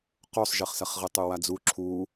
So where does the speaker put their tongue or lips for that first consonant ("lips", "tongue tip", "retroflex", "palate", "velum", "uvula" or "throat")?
uvula